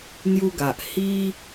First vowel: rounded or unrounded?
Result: rounded